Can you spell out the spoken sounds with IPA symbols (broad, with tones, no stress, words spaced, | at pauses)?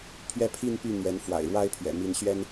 pʰɥɛ˥˧pʰi˥˧npy˥˩ n̪ɥɛ˧˥nfwa̰˨˩ɪ̯ɻwa˥ɪ̯pʰɥɛ̰˨˩ mi˧˥nɕɥɛ˥n